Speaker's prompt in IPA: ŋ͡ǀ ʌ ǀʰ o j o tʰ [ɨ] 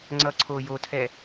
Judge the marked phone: incorrect: ɛ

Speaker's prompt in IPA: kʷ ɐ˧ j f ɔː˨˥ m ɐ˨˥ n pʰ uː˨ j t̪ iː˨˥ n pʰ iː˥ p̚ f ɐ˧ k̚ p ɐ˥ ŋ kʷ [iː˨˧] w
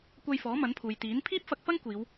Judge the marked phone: correct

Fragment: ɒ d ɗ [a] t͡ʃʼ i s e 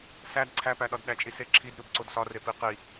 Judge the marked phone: incorrect: æ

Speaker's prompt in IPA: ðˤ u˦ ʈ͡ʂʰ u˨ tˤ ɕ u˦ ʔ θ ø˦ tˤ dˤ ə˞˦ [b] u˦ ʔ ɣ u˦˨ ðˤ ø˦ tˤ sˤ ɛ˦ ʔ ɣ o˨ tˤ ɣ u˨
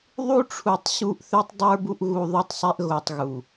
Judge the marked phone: correct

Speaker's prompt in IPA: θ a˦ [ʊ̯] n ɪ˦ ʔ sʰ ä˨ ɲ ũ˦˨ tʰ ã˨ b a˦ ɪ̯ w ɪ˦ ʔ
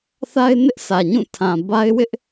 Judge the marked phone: incorrect: ɪ̯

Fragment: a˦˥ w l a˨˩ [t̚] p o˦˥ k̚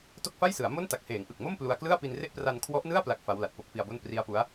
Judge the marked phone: correct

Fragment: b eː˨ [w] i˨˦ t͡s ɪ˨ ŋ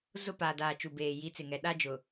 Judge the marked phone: incorrect: j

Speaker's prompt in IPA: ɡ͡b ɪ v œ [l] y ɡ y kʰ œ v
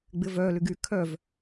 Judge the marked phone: correct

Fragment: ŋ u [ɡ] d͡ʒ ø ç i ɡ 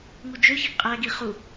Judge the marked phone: incorrect: none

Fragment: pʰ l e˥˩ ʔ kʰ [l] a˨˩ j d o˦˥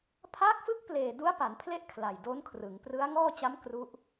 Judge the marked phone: correct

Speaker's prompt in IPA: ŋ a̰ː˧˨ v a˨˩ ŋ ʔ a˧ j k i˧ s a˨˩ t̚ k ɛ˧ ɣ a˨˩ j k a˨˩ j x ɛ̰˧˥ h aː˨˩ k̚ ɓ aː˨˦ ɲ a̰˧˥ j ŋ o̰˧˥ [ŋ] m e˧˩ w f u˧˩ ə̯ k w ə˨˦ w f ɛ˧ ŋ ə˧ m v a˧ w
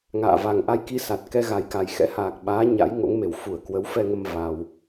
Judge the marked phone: correct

